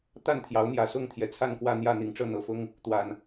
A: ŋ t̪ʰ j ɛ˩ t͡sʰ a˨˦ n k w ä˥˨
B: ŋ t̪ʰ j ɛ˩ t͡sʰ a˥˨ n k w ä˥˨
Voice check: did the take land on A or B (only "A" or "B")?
B